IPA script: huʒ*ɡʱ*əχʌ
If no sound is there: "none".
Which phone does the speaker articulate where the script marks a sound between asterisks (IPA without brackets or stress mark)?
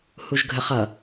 ɡʱ